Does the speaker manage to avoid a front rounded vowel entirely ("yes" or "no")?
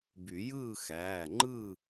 no